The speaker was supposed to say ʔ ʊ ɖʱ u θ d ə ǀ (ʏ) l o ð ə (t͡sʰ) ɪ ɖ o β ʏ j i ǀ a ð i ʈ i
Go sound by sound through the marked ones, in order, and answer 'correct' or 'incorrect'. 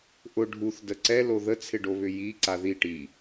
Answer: incorrect, correct

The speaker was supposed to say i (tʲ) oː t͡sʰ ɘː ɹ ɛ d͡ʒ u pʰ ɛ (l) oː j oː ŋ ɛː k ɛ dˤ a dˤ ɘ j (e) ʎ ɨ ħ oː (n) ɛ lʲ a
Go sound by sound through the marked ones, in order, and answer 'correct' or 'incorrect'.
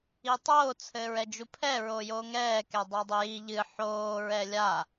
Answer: incorrect, incorrect, incorrect, incorrect

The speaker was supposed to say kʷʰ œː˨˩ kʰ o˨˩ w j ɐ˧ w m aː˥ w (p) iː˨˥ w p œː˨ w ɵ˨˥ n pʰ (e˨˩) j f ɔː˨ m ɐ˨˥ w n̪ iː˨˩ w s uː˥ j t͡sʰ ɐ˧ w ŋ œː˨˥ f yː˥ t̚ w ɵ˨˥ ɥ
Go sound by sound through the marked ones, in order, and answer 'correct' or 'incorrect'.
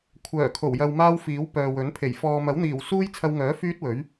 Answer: incorrect, correct

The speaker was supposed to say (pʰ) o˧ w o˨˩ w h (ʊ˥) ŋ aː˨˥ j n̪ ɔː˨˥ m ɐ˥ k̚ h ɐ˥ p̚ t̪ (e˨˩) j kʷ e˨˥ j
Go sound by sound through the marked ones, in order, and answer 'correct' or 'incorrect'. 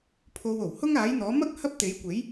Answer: correct, correct, incorrect

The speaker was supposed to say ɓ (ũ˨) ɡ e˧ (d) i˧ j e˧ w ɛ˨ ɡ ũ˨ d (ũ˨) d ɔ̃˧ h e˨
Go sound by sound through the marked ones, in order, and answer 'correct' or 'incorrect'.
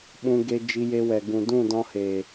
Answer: incorrect, incorrect, incorrect

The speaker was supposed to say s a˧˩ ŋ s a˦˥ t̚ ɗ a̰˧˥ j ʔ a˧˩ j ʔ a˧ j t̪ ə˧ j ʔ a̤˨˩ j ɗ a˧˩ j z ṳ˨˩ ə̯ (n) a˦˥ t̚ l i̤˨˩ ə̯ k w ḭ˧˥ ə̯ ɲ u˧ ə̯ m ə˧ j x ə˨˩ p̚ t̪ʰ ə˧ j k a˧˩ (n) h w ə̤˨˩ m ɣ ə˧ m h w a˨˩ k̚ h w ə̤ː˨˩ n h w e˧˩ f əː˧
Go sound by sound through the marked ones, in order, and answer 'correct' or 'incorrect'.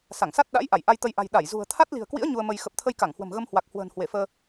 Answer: incorrect, incorrect

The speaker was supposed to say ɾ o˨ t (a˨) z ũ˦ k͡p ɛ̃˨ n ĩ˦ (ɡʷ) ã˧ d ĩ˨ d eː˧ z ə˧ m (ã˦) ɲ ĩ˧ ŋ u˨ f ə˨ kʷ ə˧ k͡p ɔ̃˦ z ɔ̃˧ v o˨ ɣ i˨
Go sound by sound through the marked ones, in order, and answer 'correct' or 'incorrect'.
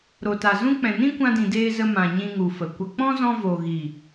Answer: correct, incorrect, incorrect

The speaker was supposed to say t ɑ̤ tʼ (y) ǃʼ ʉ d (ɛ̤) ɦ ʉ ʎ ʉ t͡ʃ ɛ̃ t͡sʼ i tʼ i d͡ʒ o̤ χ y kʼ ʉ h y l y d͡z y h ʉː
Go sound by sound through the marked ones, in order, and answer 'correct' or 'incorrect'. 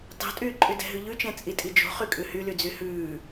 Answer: incorrect, correct

